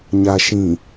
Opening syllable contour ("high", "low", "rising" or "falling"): low